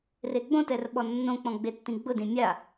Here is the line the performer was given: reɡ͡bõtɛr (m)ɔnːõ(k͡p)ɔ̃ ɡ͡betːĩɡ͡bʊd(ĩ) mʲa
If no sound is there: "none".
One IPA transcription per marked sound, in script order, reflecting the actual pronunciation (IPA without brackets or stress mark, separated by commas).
ɓ, k͡p, ĩ